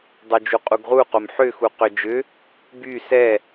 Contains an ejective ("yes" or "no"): yes